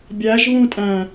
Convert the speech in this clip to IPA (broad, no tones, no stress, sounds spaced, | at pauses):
bʲ æ ʒ β ũ tʼ æ̃